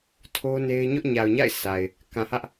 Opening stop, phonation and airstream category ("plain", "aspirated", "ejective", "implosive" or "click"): aspirated